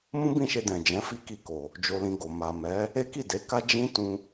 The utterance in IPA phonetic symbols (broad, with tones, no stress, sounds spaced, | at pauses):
m ũ˦ b ĩ˦˨ ʃ e˧ d ɛ̃˨ d͡ʒ ɛ̃˨˦ f i˦ k i˧ k o˨ | d͡ʒ o˧ l ĩ˧ ɡ o˨ m a˨ m ɛ˨˦ | e˦ k i˦˨ d e˨˦ k a˦ d͡ʒ ĩ˦ t ũ˧